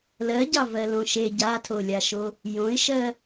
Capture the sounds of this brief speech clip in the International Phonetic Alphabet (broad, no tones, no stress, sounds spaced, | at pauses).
l ɜ ɟ ɑ v ɜ l õ ʃ e ɟ a tʰ o lʲ a ʃ o | j õ ɪ̯ ʃ ɜ